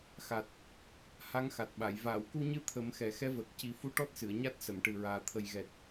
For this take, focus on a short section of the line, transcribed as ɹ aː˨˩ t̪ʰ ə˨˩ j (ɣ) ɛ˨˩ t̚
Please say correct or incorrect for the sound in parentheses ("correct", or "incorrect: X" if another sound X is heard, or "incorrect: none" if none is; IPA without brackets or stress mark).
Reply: correct